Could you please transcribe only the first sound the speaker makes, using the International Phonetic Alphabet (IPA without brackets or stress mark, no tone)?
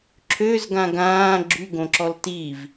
ǁʰ